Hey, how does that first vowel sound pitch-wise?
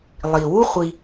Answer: low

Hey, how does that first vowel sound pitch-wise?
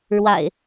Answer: low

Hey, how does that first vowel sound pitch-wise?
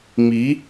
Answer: rising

